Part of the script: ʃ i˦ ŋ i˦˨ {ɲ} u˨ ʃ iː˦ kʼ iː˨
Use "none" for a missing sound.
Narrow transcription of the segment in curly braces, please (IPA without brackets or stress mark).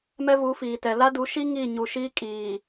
ɲ